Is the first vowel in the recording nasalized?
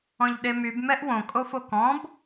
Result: yes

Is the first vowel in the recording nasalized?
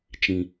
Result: yes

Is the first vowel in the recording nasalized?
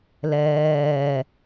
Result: no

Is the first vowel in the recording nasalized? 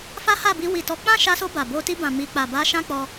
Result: no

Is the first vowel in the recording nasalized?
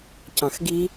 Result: yes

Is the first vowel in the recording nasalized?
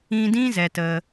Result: yes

